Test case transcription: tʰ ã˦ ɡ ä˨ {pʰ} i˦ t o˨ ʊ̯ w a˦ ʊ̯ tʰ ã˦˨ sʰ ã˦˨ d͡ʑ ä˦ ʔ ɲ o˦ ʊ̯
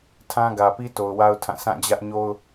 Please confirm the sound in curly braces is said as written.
no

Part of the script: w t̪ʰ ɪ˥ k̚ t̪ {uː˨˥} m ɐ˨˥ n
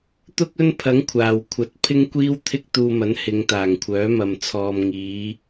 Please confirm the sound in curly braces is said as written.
no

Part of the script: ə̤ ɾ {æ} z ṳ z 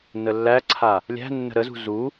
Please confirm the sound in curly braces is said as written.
no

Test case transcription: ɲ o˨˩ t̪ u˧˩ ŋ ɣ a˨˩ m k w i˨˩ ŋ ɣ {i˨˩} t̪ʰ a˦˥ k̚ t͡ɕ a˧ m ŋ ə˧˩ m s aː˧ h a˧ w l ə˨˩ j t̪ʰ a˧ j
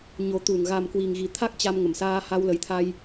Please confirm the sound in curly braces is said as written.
yes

